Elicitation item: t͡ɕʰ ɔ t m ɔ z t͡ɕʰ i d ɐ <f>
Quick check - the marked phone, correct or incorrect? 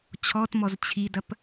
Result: incorrect